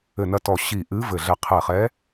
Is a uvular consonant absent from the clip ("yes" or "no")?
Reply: no